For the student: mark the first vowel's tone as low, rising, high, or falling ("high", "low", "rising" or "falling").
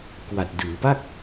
low